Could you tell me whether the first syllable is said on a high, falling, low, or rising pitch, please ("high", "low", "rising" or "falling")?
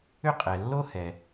high